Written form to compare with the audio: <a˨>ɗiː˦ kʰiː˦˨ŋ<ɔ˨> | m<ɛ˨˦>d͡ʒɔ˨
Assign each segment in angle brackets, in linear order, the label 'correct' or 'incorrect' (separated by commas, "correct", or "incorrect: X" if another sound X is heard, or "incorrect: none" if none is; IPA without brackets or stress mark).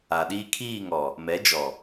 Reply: correct, correct, correct